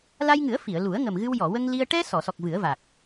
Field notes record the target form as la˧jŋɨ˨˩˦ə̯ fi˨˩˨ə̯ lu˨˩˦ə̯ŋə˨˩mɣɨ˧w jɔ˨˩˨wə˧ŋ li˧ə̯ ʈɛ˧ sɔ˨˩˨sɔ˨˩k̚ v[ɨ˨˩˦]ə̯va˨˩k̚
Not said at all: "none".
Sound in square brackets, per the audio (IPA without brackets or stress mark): ɨ˨˩˦